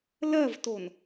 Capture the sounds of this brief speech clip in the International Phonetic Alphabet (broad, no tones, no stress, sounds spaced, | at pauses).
l ɜ v t o n